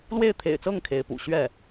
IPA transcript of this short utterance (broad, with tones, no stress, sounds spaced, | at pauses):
l w e˥˩ ɪ̯ t̪ʰ ḛ˨˩ ɪ̯ t͡s ɤ˥˩ ŋ kʰ e˧˥ ɪ̯ p ṵ˨˩ ɕ ɥ ɛ˥˩